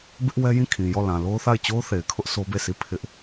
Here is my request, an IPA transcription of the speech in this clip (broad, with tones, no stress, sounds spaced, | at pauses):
b ɪ˦ ʔ w ɛ˦ j ĩ˦˨ kʰ ĩ˨ j ɔ˦˨ l ã˨ l o˦ ʊ̯ θ a˦˨ ɪ̯ t͡ɕ o˦ ʊ̯ θ e˨ ɪ̯ kʰ ʊ˦ ʔ s o˦ b e˦˨ s i˦˨ pʰ ɪ˦ ʔ